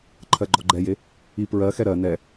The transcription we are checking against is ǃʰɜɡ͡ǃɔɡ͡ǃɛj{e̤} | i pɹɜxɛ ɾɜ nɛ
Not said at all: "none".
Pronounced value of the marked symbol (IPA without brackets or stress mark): e